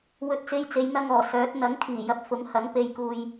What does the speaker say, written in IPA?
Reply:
w ɵ˧ t̚ t͡s e˧ j t͡s e˨˧ j n̪ ɐ˧ ŋ ɔː˨˩ s œː˨˥ t̚ n̪ ɐ˨˥ ŋ kʰ iː˨˩ j ɐ˨ p̚ f ʊ˨˥ ŋ h ɐ˨˥ ŋ p e˧ j k uː˧ j

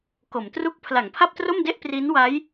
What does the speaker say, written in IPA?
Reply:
k o˩˦ m t r u˥˩ k̚ pʰ l a˩˦ ŋ pʰ a˥˩ p̚ t r o˥˩ m d e˥˩ ʔ p r i˦˥ n w a˦˥ j

